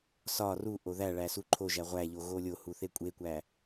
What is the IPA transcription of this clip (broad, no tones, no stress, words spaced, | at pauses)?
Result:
sɒ ruʔo ðæɭæ suǃʰoʒæ ʁʷæʎo ɣolʲohu θekʷʼekʷæ